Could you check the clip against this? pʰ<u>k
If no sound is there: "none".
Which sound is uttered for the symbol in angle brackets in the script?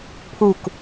u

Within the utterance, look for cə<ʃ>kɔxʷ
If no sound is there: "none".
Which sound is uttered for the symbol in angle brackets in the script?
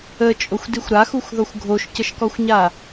ʃ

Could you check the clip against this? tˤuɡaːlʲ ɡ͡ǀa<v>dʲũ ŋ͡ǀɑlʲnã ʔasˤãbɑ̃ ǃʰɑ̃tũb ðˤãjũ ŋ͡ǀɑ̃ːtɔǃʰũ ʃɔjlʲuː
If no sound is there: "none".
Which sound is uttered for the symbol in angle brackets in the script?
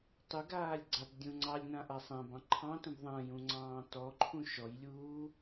b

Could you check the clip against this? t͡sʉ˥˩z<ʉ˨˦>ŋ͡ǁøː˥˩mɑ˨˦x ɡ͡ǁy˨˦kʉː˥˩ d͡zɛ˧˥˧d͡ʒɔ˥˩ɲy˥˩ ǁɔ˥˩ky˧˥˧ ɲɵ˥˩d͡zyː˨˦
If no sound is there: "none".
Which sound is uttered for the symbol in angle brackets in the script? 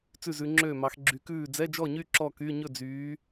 ʉ˨˦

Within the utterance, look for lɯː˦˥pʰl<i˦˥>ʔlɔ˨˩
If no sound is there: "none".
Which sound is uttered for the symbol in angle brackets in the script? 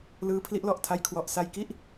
i˦˥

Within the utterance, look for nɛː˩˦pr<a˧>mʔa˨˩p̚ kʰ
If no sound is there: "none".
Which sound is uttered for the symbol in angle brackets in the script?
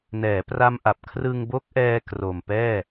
a˧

